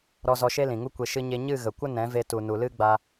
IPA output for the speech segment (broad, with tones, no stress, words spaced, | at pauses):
ɾɔ˧zɔ˧ʃe˦ lĩ˨ŋu˦kʷe˧ ʃɨ˧ɲe˧ ɲɨ˦˨ɣə˨kʷə˦ nɛ̃˨˦ve˧tu˨nu˨ lɨ˦ɡ͡ba˧